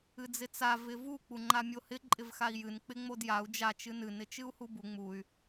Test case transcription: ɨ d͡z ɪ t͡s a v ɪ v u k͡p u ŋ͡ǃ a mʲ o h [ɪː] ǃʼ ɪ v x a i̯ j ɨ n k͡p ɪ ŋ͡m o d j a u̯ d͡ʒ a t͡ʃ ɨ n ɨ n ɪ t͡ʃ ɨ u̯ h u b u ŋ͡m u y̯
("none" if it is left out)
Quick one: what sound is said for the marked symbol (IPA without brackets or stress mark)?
ɪ